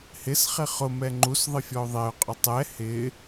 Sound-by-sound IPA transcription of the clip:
h ɪ s χ ɪ χ ʊ m ɛ ŋ͡ǃ u s ðˤ ɪ fʲ ɔ ʊ̯ ðˤ e ʊ̯ qʼ ʊ tˤ ɛ h ɪ

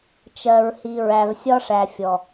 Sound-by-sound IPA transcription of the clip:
t͡ʃ ɜ˨ ɹ h i˨ ɹ æ˨ v sʲ ɒ˦ ʂ æ˨ fʲ ɔ˨

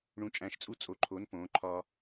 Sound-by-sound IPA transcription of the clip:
ɳ ũ˧˥ t͡ʃʼ æ̃˧˥ ʃ t͡sʼ u˥ t͡sʼ o˧˥ ǃʰ o˧˥ n p õː˧˥ ǃʰ ɒ˥

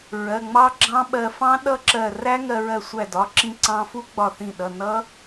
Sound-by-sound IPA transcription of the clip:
ɹ ɜ˩˧˩ ŋ͡m ɑ˦˥ ɡ͡ǁ ɑ̃˦˥ ɓ ɜ˧ f ɑ̃˦˥ ɗ ʌ˦˥ ǁ ɜ˧˩ r æ˦˥ ŋ ɜ˧ ɹ ɜ˧˩ sʷ æ˧˩ d ɒ˩˧˩ ǁ ĩ˧ ǀ ɑ̃˧ f u˦˥ ɡ͡b ɒ˧˩ θ ĩ˧˩ ɗ ʌ˩˧˩ n ʌ˦˥

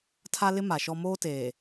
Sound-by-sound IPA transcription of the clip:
tʰ a˦ l ɪ˦ m a˨ ʃ ɔ˦ m oː˦ t eː˨

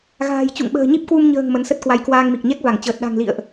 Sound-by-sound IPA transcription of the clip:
ɣ a̤ː˨˩ j t͡ɕ ṵ˧˨ ŋ ɓ ə̤ː˨˩ ɲ i˦˥ p̚ k w u˧ m ɲ ə̤ː˨˩ ŋ m ə˨˦ n s ə˦˥ t̚ k w a˧ j k w aː˧ ŋ m i˨˩ k̚ ɲ ɛ˦˥ k̚ v a˧˩ ŋ t͡ɕ əː˨˩ t̚ ɗ a̤˨˩ ŋ l ḭ˧˨ ə̯ ʔ

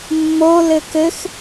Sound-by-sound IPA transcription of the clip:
mː o l ɘ k ɘ x

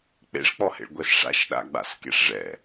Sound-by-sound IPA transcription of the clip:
k͡p ḛ ʂ k͡p ɔ h ḛ ɭ ɡʷ ɛ s ʂ a̰ ʃ ɗ a̰ ɡ͡b a̰ s k ḛ ʂ ʐ ɛ̰

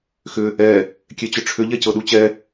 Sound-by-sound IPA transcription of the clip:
x ʏ | ɛ | kʲ e t͡ɕ ʏ ʈ͡ʂʰ ʏ ʎ ɛ c ɤ ɗ u t͡ɕ ɛ

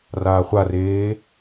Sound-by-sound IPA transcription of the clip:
r aː χʷ a r eː

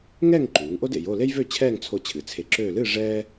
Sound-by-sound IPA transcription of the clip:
ŋ ɛ˥˧ ŋ ǃ uː˩˧ ŋ ʔ o˥ d ḛ˩˧ j o˥˧ l e˥ j v ø˥˧ t͡ɕʰ ɛː˥˧ ŋ t͡sʰ o˧ t͡ɕʰ ɨ˩˧ t͡sʰ e˧˩ ǁ øː˥˧ l ɨː˥˧ ʐ ɛː˥

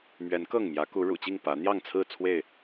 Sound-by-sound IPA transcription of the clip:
m ɥ ɛ˨˦ n k ɤ˥˨ ŋ m j ä˨˦ k u˨˦ ɻ ṵ˨˩ t͡ɕ i˥˨ ŋ p ä˨˦ n̪ j ɑ˥˨ ŋ t͡sʰ ɹ̩˥˨ t͡sʰ w e˥˨ ɪ̯

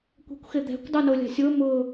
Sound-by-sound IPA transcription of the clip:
kʷ ɛ̤ kʷ x ɪ d̪ ɛ̤ kʷ dˤ ʊː n o lʲ a̤ sʲ ʊː m ʊ

